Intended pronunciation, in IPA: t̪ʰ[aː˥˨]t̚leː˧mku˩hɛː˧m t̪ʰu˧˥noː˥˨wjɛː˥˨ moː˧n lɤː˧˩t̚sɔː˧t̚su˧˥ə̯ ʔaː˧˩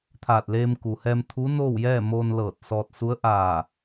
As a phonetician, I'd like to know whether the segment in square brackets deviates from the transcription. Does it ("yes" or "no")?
yes